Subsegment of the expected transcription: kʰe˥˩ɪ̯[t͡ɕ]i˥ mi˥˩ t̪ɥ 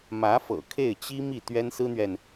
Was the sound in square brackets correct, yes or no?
yes